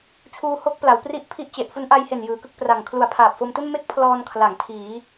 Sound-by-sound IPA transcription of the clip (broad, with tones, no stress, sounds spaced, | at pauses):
t͡ɕʰ uː˧ h o˦˥ k̚ p l a˩˦ w p r i˥˩ ʔ pʰ i˥˩ ʔ t͡ɕ e˨˩ ʔ f u˦˥ n ʔ a˧ j h e˨˩ n j ɯː˩˦ k ɯ˥˩ k̚ p r a˨˩ ŋ kʰ l u˨˩ a̯ pʰ aː˨˩ p̚ f o˧ m t u˥˩ n m e˥˩ k̚ pʰ l ɔː˧ n kʰ l a˩˦ ŋ tʰ iː˩˦